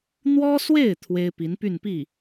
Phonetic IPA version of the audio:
n̪ w ɔ˥ s w e˥˩ ɪ̯ t̪ʰ w e˥ ɪ̯ p i˧˥ n p y˥˧ n p i˥˩

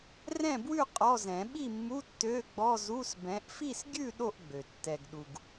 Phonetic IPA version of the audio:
r ɛ̃˥˨ b w ʉ˥˨ qʼ ɔ˧˥˧ z ɛ̃˨˩˦ ɓ i˥˨ mː u˧˥˧ tː ø˧˥˧ ɡ͡b ɔ˧˥˧ z u˧˥˧ s b ɛ̃˨˦ ʔ f i˥˨ s ɡʲ ʉ˥˨ ɗ o˥˨ ʔ ɡ͡b ø˩ tː ɛ˩ ɡ ɗ u˩ ɡ

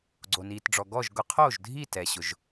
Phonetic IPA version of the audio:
ɡ͡ǀ o˩ n iː˩ t ɖ͡ʐ ɔ˩ ɡ ɔ˥˨ ʒ ɡ ʊ˧˩˧ qʰ oː˥˨ ʒ dʱ iː˥˨ t ɛ˩ ɕ ʊ˩ ʒ

